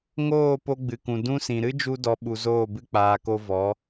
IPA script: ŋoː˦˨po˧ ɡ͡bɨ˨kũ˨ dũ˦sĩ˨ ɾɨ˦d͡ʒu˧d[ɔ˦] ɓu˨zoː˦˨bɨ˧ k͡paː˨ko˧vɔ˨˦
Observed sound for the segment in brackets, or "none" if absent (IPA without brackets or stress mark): ɔ˨